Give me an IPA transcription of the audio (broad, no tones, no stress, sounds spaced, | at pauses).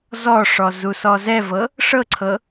z ɔ ʂ ɔ z u s ɔ z ɛ v ɤ | ʂ ɤ ǀʰ ɤ